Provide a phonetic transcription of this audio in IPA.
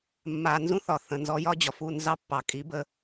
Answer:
mː a˨ n z ũ˦ θ ɒ˨ θ ə̃˨ n z ɔ˦ j ɒ˦ d͡ʑ ɒ˨ f u˦˨ n z ɑ˦ pː ɑ˨ kʼ i˨˦ b ə˦

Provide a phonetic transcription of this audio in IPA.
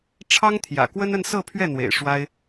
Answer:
ʈ͡ʂʰ ɑ˥ ŋ t̪ʰ j ä̰˨˩ k w ə˥ n ə˥˧ n s ɤ˥˧ pʰ ɥ ɛ˥˩ n̪ w ḛ˨˩ ɪ̯ ʂ w a˥ ɪ̯

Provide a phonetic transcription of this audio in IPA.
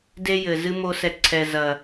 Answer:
d e˦ j ɘ˨ z ɨ˦ m o˧ s ɛ˨ ǀʰ ɛ˨ z ɐ˨

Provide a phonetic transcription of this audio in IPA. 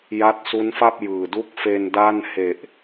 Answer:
j a˦˥ t̚ s u˦˥ n f a˥˩ p̚ j ɯː˨˩ d u˥˩ k̚ f e˧ n d a˥˩ n h e˨˩ ʔ

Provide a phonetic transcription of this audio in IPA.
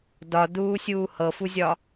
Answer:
d ɒ d uː sʲ uː h ɤ f u zʲ ɒ

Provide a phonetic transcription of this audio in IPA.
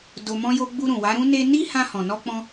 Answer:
d o˧ m ɔ̃˦ j o˦ ɡ͡b u˧ ɾ ũ˨ w a˨˦ ɾ ũ˦ n e˧ n i˦ h ã˧ h ɔ̃˨ n ɔ˧ k͡p ɔ̃˧

